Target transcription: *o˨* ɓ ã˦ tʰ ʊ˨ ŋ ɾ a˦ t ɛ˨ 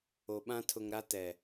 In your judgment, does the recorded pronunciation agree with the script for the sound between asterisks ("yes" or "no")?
yes